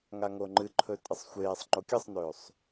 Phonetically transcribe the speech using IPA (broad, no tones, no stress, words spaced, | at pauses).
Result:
ŋaŋoŋ͡ǃɨǃʰɵ tʼɨsˤxʷeːsˤŋ͡ǃo kʲɨsˤnɵːsˤ